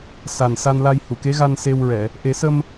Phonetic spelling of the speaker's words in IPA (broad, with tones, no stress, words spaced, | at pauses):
sa˨˩nsa˧nla˧j hu˨˩˨ke˧˥ɣa˧n se˧wɹɛ˨˩˨ | ʔe˨˩˦sə˧m